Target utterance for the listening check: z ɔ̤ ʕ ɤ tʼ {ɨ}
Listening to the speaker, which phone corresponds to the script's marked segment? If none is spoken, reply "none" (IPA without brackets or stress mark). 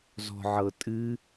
ɨ